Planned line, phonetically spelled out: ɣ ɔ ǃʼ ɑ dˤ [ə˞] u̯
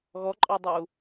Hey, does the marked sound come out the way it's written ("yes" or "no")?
yes